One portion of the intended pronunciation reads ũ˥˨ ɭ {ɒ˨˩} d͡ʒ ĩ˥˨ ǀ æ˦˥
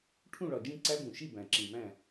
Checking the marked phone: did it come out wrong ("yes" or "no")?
no